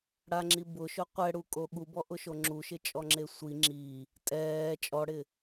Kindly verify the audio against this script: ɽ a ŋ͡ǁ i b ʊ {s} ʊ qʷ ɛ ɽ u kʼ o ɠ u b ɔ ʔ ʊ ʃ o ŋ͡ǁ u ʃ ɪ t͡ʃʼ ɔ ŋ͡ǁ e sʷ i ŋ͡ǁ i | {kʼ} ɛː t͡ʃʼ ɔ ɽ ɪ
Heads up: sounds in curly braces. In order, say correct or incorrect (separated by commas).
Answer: incorrect, incorrect